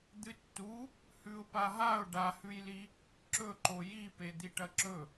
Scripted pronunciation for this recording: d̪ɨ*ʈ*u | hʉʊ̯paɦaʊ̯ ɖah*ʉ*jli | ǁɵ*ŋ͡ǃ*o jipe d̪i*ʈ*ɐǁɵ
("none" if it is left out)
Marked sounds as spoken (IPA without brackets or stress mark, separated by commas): tː, ʉ, ǃ, ʈ